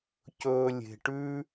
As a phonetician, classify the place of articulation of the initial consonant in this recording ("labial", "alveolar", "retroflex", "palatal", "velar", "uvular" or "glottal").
palatal